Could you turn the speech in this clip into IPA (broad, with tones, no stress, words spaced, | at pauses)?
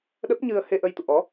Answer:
ɗə˦˥p̚ɲɨ˧ə̯he˧ʔə˧j t̪ṵ˧˨ʔɔ˨˦